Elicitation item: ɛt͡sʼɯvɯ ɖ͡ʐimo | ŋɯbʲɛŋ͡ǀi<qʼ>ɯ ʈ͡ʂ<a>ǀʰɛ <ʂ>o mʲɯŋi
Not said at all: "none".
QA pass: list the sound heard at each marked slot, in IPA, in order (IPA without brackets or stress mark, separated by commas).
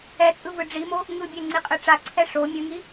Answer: qʼ, a, ʂ